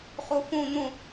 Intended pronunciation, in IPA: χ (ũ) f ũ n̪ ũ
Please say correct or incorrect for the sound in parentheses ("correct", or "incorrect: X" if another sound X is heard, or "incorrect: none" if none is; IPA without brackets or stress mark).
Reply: incorrect: u